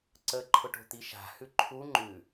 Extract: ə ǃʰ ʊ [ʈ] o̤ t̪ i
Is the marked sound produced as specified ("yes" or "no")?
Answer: yes